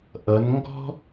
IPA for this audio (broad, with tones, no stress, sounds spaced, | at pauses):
ʔ ʌ˩˧ n ŋ ɡ ɔ̤˥